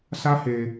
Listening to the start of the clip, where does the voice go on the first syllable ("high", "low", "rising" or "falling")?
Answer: high